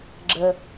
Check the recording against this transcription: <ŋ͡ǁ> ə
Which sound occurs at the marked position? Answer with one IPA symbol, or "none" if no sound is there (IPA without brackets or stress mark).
ɡ͡ǁ